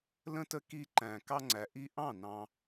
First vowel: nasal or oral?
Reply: nasal